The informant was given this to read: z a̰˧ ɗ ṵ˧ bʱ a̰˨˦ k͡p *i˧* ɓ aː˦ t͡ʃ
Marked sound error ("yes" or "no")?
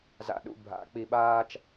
no